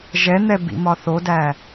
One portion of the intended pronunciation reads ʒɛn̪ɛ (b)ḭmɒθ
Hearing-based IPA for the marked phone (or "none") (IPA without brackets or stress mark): b